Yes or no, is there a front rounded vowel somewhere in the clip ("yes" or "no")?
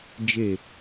no